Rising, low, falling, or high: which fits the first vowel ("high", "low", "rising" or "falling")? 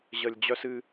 low